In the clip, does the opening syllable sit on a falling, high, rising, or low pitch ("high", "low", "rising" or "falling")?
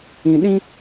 low